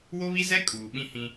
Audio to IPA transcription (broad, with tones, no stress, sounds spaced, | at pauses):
w o˦ β i˦ z ɛ˦ kʼ uː˨ ɓ ĩ˦ h ĩ˦